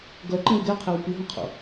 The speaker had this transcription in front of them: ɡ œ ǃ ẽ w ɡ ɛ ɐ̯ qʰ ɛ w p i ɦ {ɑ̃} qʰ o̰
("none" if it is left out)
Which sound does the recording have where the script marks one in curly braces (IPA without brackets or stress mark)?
ɔ̃